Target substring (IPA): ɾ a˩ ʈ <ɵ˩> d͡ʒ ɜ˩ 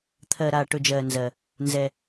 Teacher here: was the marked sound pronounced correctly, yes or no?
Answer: yes